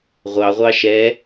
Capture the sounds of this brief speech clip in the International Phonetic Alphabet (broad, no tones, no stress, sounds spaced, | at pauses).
ʁʷ ɑ ʁʷ ɑ ʃ ɛ